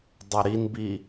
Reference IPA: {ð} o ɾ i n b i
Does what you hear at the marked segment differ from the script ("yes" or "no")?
yes